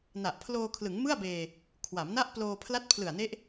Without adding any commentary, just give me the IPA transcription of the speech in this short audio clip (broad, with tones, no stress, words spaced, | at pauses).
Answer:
na˨˩ʔpʰloː˧kʰlɯ˩˦ŋmɯ˥˩a̯ beː˧ | kʰwa˩˦mna˥˩ʔploː˧ pʰla˦˥t̚ pʰlɯ˨˩a̯ne˦˥ʔ